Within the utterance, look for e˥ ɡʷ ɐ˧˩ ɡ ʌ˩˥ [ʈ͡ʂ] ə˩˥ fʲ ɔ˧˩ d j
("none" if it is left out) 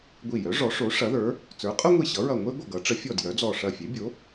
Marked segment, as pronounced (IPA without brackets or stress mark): ʈ͡ʂ